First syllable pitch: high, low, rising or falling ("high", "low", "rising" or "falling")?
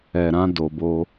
low